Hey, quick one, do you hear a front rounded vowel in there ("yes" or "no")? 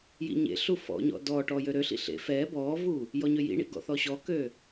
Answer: yes